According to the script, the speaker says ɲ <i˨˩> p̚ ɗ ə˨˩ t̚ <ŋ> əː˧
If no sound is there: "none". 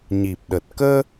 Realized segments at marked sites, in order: i˨˩, k

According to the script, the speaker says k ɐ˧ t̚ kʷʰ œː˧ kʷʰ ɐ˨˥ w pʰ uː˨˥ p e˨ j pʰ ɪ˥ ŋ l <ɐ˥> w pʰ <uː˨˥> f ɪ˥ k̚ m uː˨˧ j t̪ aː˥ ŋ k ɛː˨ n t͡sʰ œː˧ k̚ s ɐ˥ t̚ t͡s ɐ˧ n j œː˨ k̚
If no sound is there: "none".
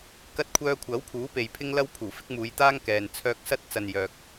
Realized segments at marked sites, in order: ɐ˥, uː˨˩

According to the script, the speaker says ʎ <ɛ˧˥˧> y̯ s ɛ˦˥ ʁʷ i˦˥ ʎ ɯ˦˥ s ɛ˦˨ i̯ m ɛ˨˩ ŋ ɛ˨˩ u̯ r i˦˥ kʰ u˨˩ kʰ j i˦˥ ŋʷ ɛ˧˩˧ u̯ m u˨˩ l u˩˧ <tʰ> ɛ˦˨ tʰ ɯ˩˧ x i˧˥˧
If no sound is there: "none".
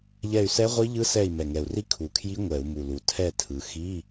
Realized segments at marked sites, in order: ɛ˦˨, tʰ

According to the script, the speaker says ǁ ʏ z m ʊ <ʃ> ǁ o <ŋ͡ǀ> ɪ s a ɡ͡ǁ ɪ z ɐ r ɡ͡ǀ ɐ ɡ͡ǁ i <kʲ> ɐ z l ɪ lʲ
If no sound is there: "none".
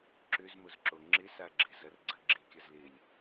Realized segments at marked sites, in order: z, ŋ͡ǁ, kʲ

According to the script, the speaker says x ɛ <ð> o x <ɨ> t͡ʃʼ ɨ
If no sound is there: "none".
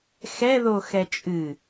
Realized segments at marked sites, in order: ð, ɛ

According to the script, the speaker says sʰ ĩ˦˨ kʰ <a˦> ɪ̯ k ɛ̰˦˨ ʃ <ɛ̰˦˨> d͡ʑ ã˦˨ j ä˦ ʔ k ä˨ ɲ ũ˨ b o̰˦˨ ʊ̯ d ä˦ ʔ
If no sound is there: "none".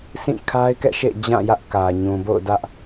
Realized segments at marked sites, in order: a˦, ḛ˦˨

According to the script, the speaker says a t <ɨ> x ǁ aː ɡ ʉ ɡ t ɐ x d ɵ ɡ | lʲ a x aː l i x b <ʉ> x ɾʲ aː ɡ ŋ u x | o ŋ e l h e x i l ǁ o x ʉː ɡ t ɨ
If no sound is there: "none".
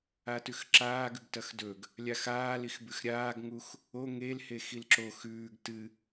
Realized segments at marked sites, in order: ʉ, ʉ

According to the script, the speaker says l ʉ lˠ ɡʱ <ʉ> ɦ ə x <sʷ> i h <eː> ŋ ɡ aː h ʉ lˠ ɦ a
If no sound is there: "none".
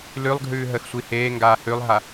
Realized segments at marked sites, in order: ʉː, sʷ, eː

